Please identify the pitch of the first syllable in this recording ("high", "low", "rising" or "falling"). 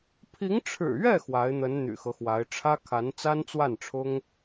rising